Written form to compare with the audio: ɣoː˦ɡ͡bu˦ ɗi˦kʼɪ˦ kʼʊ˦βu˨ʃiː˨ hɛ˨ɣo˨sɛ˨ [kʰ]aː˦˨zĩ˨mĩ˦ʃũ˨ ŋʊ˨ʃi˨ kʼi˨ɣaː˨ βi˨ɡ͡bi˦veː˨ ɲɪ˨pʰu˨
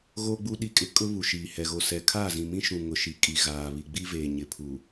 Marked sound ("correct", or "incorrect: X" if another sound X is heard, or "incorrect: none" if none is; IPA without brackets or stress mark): correct